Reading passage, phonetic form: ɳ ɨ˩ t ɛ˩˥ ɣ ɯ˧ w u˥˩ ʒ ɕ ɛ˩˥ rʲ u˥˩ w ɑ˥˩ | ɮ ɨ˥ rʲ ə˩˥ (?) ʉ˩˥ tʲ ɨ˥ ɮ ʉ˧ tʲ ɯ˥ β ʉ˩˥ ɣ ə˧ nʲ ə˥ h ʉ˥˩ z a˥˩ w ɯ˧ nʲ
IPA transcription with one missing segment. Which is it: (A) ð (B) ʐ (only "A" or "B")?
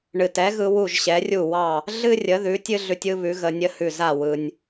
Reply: A